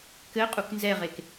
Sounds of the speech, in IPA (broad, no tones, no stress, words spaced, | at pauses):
kɘ qʼuknzɛʁek